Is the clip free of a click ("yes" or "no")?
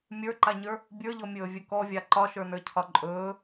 no